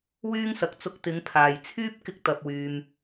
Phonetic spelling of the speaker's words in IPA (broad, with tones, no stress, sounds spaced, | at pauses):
w yː˥ ŋ s ɐ˨˥ k̚ t͡s ʊ˧ k̚ t̪ ɪ˨˧ ŋ pʰ aː˨ j t͡sʰ yː˥ p̚ k ɪ˥ k̚ t̪ ɐ˧ p̚ w yː˧ m